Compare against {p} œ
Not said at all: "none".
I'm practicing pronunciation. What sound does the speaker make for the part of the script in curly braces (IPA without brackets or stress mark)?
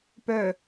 p